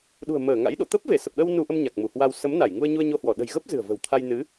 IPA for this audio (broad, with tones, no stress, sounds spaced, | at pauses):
ɗ ṳ˨˩ ə̯ m əː˧˩ ŋ a̰˧˥ j ɗ o̰˧˨ t̪ ə˦˥ p̚ v e˧˩ s ə˨˩ p̚ ɗ ə˧ w n u˧ ʔ ə˧ m ɲ a˨˩ k̚ m u˧˩ h w a˧ w s ə˨˦ m n a˧˩ j ŋ u˧ ə̯ ɲ u˧ ə̯ ɲ o˧ h w ɔ˧˩ ɗ ə̤˨˩ j ɣ ə˦˥ p̚ z ɨ̤˨˩ ə̯ v ə̤˨˩ w t̪ʰ a˧ j n ɨ˨˦